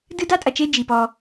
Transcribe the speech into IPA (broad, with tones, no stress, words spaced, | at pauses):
dɨ˦da˦tʼɐ˨t͡ʃe˦ d͡ʒi˨pɔ˦